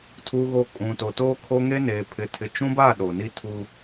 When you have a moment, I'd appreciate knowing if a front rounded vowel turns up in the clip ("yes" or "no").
no